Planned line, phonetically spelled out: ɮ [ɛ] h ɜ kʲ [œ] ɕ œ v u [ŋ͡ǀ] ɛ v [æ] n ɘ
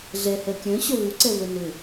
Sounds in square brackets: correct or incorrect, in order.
correct, incorrect, incorrect, incorrect

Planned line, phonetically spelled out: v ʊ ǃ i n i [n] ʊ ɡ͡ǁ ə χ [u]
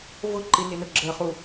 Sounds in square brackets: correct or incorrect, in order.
correct, correct

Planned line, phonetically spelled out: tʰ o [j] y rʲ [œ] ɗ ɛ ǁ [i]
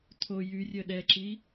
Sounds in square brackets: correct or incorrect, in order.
correct, correct, correct

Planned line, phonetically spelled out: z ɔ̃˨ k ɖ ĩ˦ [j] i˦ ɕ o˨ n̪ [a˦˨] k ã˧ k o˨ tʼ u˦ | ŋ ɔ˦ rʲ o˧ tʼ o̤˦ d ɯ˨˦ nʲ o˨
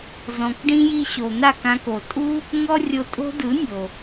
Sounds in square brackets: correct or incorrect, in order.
correct, correct

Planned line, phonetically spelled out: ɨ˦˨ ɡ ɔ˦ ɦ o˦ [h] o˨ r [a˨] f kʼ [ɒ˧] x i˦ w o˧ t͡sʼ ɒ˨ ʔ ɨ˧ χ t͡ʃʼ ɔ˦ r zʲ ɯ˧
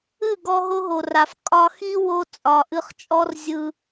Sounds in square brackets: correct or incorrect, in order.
incorrect, correct, correct

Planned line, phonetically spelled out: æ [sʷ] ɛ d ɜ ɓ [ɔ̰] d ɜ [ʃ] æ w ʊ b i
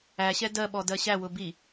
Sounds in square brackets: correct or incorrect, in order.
incorrect, incorrect, incorrect

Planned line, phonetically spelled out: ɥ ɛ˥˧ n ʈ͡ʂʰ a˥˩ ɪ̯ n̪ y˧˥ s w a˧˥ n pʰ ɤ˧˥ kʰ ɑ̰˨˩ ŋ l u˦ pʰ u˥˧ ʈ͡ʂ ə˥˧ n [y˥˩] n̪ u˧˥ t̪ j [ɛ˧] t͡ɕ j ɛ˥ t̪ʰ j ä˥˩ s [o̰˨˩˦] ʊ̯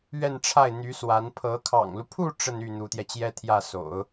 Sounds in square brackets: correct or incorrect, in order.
correct, correct, correct

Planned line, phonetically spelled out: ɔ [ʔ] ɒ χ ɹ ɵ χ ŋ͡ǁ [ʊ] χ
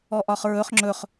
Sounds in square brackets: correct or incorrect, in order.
correct, incorrect

